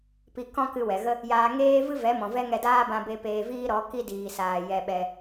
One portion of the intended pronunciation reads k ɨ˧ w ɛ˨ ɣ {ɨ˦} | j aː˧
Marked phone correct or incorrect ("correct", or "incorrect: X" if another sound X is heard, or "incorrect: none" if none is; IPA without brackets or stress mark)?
incorrect: ə˦